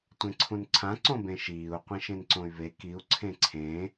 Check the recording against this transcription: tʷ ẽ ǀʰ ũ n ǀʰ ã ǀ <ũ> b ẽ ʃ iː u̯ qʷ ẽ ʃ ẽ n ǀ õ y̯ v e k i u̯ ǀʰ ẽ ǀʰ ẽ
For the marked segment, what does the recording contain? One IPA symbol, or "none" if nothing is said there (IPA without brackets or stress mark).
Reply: õ